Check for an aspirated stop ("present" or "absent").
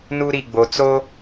absent